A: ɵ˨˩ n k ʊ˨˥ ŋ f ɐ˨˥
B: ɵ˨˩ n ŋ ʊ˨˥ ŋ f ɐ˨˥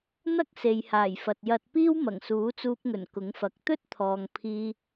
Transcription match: A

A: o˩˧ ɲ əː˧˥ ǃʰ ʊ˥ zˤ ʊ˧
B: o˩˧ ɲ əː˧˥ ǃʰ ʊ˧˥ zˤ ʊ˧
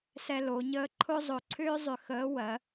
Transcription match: A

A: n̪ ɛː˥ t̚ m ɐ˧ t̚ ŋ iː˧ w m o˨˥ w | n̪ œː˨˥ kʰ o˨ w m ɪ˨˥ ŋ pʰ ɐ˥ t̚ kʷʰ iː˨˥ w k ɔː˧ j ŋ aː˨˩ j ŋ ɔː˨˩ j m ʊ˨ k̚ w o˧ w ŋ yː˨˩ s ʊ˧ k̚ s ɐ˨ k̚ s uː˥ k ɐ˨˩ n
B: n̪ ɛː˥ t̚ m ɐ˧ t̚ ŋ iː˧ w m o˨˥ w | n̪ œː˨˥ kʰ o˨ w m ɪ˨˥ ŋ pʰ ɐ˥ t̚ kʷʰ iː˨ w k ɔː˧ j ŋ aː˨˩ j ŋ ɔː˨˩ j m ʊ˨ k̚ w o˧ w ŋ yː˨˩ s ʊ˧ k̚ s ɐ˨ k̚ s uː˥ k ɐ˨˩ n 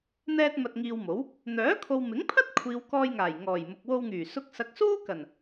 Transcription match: B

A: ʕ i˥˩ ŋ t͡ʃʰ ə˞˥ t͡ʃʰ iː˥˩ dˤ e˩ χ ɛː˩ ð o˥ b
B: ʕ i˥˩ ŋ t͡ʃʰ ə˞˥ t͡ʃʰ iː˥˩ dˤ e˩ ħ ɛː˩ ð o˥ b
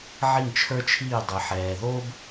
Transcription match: B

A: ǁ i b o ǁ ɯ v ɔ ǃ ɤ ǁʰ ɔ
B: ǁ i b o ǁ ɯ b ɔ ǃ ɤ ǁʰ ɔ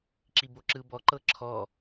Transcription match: B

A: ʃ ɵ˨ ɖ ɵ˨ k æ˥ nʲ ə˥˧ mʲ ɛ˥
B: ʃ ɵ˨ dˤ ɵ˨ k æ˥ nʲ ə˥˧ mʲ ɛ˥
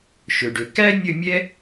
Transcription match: A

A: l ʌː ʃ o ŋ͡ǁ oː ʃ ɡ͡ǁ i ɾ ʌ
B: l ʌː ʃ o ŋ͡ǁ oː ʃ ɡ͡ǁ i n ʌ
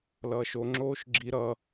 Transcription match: A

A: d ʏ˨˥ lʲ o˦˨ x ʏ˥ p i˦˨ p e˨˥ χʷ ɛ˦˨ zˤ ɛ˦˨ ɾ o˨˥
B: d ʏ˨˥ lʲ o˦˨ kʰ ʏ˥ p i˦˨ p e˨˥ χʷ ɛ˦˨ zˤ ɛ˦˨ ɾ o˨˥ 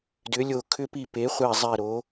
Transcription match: B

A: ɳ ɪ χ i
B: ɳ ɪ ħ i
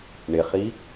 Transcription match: A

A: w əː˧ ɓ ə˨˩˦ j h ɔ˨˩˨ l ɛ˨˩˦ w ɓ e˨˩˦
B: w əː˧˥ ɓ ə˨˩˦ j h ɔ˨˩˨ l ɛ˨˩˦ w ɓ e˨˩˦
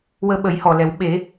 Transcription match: A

